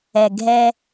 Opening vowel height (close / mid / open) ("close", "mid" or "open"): mid